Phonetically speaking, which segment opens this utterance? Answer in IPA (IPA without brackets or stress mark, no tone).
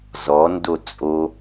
z